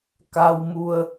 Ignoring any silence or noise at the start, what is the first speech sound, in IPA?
k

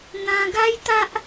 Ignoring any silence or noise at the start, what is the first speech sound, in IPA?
n̪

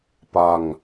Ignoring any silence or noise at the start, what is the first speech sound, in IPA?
p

